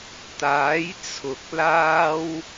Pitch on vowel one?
rising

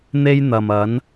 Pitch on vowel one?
high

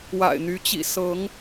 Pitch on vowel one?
low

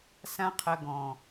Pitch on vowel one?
high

